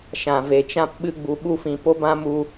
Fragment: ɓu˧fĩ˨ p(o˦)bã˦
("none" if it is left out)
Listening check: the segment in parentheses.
o˦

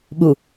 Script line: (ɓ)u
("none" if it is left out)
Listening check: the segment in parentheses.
ɓ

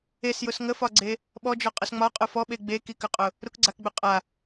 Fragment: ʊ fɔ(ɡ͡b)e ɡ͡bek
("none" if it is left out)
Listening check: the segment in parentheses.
ɓ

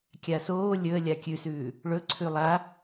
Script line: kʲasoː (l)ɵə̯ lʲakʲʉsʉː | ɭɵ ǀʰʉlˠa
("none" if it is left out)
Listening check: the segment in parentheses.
lʲ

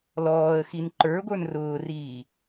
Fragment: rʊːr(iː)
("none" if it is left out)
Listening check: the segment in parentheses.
iː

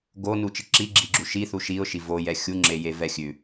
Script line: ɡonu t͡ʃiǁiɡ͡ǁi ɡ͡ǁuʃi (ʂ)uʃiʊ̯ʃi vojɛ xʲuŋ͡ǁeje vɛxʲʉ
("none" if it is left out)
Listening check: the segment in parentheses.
θ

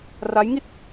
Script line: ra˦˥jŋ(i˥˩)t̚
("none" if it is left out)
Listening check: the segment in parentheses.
i˥˩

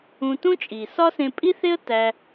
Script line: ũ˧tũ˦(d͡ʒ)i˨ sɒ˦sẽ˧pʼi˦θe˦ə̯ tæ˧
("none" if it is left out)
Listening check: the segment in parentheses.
t͡ʃʼ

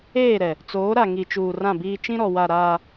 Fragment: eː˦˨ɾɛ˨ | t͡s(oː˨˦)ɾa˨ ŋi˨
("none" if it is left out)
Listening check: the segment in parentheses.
oː˨˦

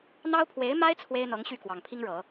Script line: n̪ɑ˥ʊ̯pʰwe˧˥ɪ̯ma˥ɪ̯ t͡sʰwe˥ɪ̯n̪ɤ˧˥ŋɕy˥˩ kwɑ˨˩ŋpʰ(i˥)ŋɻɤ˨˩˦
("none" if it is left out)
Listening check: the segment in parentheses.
i˥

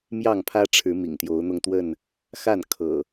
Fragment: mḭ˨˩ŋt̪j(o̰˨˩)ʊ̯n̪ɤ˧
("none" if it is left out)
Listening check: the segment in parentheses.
o˨˦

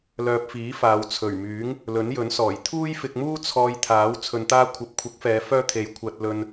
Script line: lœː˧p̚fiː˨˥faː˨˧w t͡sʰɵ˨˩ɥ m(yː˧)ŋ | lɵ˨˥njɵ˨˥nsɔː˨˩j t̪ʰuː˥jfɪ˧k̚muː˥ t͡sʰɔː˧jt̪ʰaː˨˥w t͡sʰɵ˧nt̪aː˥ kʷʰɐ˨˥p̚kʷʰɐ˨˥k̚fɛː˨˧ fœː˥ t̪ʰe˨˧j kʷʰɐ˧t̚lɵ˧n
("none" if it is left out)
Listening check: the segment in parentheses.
yː˨˥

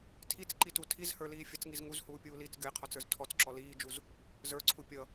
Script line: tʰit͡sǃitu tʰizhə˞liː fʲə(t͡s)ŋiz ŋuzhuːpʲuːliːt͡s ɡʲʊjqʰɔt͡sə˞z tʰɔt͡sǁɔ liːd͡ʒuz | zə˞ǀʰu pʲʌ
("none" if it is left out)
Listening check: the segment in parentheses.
t͡s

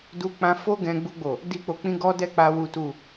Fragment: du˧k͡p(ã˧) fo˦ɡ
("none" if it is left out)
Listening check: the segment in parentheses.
ã˧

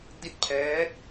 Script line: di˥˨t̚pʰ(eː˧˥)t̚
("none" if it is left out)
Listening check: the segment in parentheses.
ɛː˧˥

